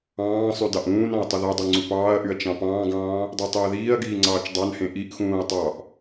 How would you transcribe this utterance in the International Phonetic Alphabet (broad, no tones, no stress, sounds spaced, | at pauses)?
ɑ̃ː sˤ y d ɑ ʔ ũː n ɑ̃ ɐ̯ tˤ o ð æ dˤ u ŋ͡ǀ u p ɑː ɐ̯ ʔ y ɐ̯ t͡ʃ ɑ̃ p ɑ̃ː ɡ ɑ̃ː | dˤ ø tˤ e ɐ̯ ð iː ɐ̯ ɡ iː ŋ͡ǀ ɑː t͡ʃ dˤ ɑ n h ẽ ʔ i ʔ x ũː ɐ̯ tˤ ɑ ʔ